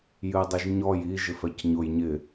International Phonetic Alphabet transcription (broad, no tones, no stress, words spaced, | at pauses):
jɨdˤiʒɲɔj i ʒɪfɛcɲʊj ɲɪ